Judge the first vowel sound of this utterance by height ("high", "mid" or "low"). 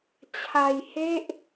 low